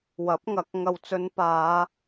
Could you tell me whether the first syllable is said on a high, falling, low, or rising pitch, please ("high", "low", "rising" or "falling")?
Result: rising